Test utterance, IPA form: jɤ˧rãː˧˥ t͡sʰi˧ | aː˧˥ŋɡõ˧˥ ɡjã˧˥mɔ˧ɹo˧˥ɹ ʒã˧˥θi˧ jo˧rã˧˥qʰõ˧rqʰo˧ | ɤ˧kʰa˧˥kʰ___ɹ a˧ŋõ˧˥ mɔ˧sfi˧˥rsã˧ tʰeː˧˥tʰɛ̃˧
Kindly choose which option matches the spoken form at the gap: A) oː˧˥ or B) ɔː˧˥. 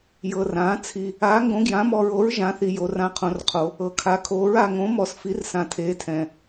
A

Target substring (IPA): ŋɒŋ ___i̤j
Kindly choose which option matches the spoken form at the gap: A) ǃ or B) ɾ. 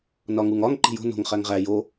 A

